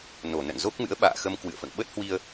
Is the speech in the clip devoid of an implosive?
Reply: no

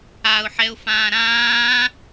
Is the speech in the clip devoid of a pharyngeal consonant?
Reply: no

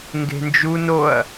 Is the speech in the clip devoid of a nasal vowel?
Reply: yes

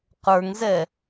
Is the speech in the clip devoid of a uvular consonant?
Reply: no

